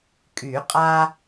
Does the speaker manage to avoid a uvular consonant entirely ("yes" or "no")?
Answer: no